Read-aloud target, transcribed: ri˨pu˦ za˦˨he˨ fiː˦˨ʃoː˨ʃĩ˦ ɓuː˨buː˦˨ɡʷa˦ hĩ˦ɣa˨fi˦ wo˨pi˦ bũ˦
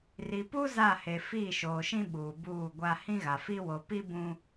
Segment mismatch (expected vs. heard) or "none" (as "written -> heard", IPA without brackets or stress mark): none